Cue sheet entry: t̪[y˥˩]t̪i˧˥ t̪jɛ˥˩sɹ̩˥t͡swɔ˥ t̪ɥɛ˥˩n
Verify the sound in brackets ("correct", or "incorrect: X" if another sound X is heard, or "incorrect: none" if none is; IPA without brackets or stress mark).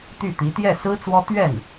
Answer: correct